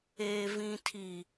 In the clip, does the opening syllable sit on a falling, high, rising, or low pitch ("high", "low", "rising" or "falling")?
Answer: low